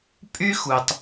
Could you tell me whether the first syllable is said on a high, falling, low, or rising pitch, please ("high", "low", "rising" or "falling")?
high